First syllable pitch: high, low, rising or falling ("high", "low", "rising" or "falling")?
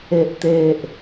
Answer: low